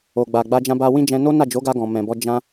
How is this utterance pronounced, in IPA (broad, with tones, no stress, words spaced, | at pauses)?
o˨ɡ͡ba˨ ɡ͡ba˧d͡ʒã˧ba˧ wĩ˦d͡ʒɛ̃˧ no˦na˦˨d͡ʒo˨˦ɡa˧ ɡɔ̃˨mɛ̃˨bɔ˧ d͡ʒã˧